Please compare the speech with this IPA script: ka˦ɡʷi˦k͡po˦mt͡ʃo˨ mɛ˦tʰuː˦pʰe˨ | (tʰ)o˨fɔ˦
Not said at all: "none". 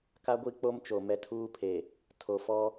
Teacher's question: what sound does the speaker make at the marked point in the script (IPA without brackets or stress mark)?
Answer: tʰ